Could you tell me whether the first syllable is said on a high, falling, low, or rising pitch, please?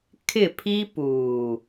falling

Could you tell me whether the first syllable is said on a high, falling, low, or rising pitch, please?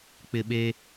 low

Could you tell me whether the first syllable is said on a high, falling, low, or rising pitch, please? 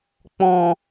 low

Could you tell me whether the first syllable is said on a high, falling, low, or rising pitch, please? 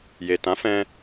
low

